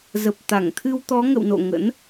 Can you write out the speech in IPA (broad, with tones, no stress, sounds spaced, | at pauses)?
z ə˨˩ p̚ t̪ a˧˩ ŋ t̪ʰ ɨ˧ w t̪ ɔ˨˦ ŋ ə̰˧˨ w n o̰˧˨ ŋ ə̰˧˥ n